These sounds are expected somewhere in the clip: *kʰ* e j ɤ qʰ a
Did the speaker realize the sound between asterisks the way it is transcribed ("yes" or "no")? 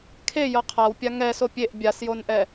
yes